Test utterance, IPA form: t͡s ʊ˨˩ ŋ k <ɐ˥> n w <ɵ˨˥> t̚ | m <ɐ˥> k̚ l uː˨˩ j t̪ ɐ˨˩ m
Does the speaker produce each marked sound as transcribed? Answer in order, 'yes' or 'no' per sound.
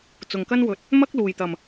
yes, yes, yes

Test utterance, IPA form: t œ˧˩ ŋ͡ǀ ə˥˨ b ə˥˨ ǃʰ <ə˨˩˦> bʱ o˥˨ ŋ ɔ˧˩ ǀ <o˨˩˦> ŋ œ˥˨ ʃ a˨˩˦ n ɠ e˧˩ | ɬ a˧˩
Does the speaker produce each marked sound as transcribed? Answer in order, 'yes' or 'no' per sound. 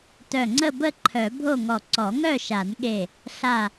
no, no

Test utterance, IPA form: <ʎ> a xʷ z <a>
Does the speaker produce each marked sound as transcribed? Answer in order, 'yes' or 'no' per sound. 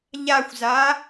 yes, yes

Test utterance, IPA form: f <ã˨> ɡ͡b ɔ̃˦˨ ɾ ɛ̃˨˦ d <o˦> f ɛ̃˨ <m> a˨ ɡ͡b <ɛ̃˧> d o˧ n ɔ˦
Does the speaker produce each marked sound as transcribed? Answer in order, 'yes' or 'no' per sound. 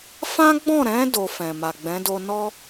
no, no, yes, no

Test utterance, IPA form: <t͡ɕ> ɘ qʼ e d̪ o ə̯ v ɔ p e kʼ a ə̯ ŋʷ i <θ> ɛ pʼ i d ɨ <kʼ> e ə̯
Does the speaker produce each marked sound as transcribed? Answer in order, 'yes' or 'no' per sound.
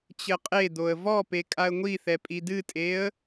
yes, yes, no

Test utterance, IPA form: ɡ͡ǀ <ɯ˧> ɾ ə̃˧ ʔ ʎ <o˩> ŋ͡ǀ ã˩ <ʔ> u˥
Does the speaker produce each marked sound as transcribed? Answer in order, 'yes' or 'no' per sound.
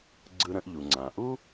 yes, no, yes

